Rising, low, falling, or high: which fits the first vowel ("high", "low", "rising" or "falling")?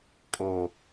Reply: low